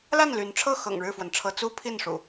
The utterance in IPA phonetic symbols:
l a˥˨ n l y˨˦ n ʈ͡ʂʰ ɤ˥˨ x ɤ̰˨˩ ŋ ɻ ɻ̩˥˨ f w ə˩ n ʈ͡ʂʰ ɤ˨˦ t͡s u˦ pʰ i˥˨ n ʂ ṵ˨˩

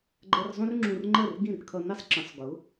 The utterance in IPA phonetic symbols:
ɡ͡ǃ ɜ˧ r zˤ ũ˥ r ŋ͡ǁ ũ˧ r ŋ͡ǃ ɜ˥˩ r ɡ ĩ˥˩ r kʰ ʌ˧ n i˥ sˤ ǁ ə̃˩˥ sˤ ɡ ʊ˩˥

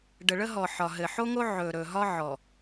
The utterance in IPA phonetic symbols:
ɖ ə˨ ɭ ə˦ ɦ ɔ˨ ħ ɒ˨ ɦ ɘ˨ ħ o˦ ŋ o˦ ʕ ɵ˨ ɾ ɵ˨ ɦ ɒ˦ ʕ ɔ˨

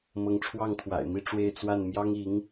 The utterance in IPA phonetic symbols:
m ɤ˧˥ ŋ ʈ͡ʂʰ w ɑ˥˩ ŋ t̪ʰ w a̰˨˩ ɪ̯ m i˥˧ ʈ͡ʂ w e˥˧ ɪ̯ t͡s w a˥˩ n m j ɑ˥ ŋ i˧˥ ŋ

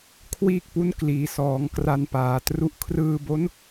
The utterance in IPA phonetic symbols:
kʰ w iː˥˩ k̚ p u˦˥ n k l iː˩˦ s ɔː˩˦ ŋ k r a˧ n p aː˩˦ t r u˥˩ ʔ kʰ r ɯː˧ b o˦˥ n

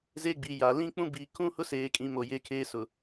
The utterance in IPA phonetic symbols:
z e˦ ɡ͡b i˨ j a˨ l ĩ˦ k͡p ũ˦ b i˨ kʰ ũ˦ h ʊ˦ s eː˨ kʼ ĩ˨ m o˨ j e˦ kʰ eː˦ s ʊ˨

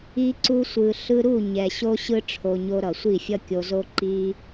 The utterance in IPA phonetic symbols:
i˧ ǀ u˧ sʷ ɯ˨ ɬ ɯ˧ ɾ u˦˨ ɲ ɛ˨ ɕ o˧ ɕ ɯ˧ ʈ͡ʂʰ o˨ ɲ o˧ ɾ ʌ˨ sʷ i˦˨ fʲ ʌ˦ kʲ o˧ z o˦ ǃ i˧

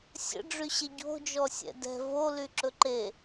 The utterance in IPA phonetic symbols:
sʲ ə̰ ɖ͡ʐ y ɕ e ɟ o̤ d͡ʒ ɔ sʲ ɛ̰ d ɛ̤ v o l y ǁ ɵ ǃ e

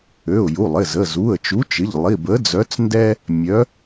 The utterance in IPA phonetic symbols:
ø˩˧˩ ʊ̯ j u˩˧˩ lˠ ɪ˩˧˩ z ə˩˧˩ z u˩˧˩ ə̯ t͡ʃ u˨˥ t͡ʃ ɪ˩˧˩ ʎ lˠ i˩˧˩ b ə˨˥ d͡z œ˨˥ t͡s n d ɛ˦ | mʲ œ˨˥

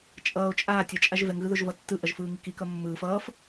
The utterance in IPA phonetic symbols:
t͡ʃʼ ʌː o̯ t͡ʃʼ aː tʲ ʌ t͡ʃʼ a ʒ v ɛ ŋ ɣ ɯ ð o ʒ v ʌ tː ɯ ʔ ʌ ʒ f ɯː ŋ i k i k ʌ mː ɯː f ʌː f

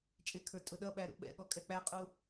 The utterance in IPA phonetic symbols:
t͡ʃʼ ɪ kʰ ə˞ tʼ ʊ ɗ ʌ ɓ æ ɾ ṵ ɓ ɛ̰ ɠ ɔ kʼ ɛ k͡p æ qʼ u

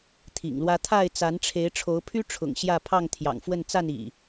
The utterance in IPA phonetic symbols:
t̪ʰ ḭ˨˩ ŋ l w ä˦ t̪ʰ a˥˨ ɪ̯ t͡s a˨˦ n ʈ͡ʂʰ e˨˦ ɪ̯ ʈ͡ʂʰ o˨˦ ʊ̯ pʰ y˦ ʈ͡ʂʰ ʊ̰˨˩ ŋ ɕ j ä˥˨ pʰ ɑ˥˨ ŋ t̪ʰ j ɑ̰˨˩ ŋ f w ə˥˨ n t͡s a˥˨ n ḭ˨˩

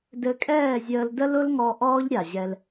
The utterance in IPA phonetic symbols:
d ɘ˧ kʼ ɛː˦˨ zʲ əː˧ l d ə˦ l ʊ˦ l ŋ ɔ˧ ʔ ɔː˦ ʎ ɾʲ a˨ ʑ ɛ˧ l

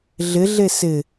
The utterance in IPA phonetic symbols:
ɮ ɪ ɮ e s ɪ

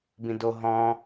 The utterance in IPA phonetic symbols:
b ĩ d o ɦ ɔ̃

